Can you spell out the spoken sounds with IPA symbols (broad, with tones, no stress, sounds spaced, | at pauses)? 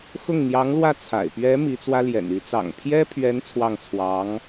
x ʊ˥˩ ŋ n̪ j ɑ˧˥ ŋ l w ä˥˩ t͡sʰ a̰˨˩ ɪ̯ p ɥ ɛ˧˥ m i˧˥ t͡s w ä˥ l j ɛ̰˨˩ n y˧˥ t͡s ɑ̰˨˩ ŋ pʰ j ɛ˥ pʰ ɥ ɛ˧˥ n t͡sʰ w ɑ˥˩ ŋ t͡sʰ w ɑ˧˥ ŋ